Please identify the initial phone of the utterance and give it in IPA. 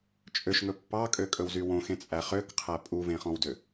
t͡ʃʼ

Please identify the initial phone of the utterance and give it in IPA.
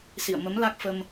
s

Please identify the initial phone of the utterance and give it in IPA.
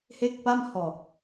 h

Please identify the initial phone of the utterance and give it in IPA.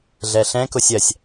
ɮ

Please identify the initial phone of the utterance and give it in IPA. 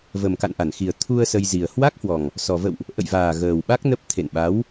v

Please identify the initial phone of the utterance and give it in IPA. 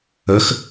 ə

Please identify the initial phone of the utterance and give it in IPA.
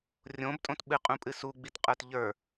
rʲ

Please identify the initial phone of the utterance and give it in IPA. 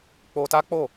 k͡p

